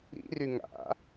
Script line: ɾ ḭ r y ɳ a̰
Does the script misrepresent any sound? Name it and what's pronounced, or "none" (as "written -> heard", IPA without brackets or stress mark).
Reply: ɳ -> ŋ